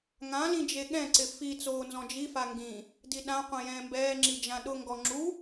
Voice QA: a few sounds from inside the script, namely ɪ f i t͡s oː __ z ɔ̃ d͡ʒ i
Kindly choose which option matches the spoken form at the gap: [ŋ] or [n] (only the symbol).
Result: n